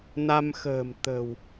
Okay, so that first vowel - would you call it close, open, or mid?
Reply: open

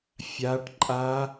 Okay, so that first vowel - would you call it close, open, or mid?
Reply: open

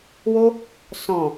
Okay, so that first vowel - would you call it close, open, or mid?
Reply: mid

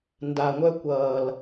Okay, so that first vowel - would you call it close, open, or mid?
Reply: open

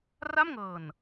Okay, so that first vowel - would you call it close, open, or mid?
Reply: open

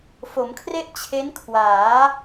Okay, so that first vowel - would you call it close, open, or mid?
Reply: mid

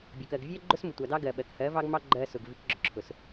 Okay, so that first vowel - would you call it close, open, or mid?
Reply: mid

